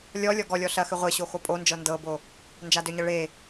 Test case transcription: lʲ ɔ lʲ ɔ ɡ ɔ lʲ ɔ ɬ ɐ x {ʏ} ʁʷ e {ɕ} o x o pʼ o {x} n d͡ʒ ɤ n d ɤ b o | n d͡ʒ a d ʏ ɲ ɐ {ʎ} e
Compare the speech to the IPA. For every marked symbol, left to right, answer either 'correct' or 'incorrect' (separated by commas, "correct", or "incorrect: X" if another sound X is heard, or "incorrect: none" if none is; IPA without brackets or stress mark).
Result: correct, correct, incorrect: none, incorrect: ɭ